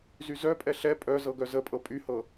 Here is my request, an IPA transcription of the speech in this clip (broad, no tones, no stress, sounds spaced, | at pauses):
z y z œ pʼ ɛ ɬ ɛ pʼ œ z ɤ ɡ œ z ə pʼ ɤ pʼ y h ɤ